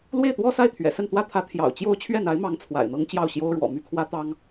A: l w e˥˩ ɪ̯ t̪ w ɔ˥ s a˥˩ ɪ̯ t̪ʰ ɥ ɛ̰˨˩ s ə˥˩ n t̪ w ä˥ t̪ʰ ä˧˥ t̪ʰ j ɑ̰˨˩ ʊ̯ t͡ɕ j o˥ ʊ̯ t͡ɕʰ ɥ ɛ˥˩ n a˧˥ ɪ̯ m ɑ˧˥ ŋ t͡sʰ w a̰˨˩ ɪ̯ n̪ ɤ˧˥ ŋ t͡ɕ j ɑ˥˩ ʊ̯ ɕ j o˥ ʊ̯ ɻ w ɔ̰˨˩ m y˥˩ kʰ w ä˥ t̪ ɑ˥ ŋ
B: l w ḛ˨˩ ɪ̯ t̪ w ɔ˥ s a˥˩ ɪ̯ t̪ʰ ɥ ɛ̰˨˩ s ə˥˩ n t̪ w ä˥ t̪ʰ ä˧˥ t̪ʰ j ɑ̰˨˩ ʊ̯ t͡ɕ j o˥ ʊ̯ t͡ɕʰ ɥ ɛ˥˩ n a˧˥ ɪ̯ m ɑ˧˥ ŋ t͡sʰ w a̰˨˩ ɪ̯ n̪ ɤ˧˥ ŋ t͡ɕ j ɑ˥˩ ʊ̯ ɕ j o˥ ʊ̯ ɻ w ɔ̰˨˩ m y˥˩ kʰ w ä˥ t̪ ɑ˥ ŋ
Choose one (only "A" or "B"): A